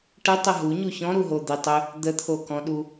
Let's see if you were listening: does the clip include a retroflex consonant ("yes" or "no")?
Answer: yes